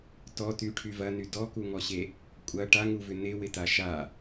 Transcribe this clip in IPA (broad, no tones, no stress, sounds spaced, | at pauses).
t ɔ t y ʈʰ y v ɐ n y d ɔ k u ŋ ɔ ɕ e | kʷʼ ɐ ʈ a ŋ u v ʏ n ɪ w ɪ t a ʃ a